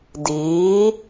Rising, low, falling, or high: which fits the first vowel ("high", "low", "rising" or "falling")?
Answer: rising